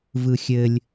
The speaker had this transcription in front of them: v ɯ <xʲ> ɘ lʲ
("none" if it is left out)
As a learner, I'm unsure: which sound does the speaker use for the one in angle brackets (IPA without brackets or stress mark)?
xʲ